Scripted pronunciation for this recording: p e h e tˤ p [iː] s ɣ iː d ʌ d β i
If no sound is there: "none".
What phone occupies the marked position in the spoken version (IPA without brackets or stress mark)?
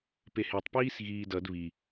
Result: iː